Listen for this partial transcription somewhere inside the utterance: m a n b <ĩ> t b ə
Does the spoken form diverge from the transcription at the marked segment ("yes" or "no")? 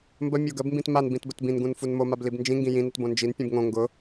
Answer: no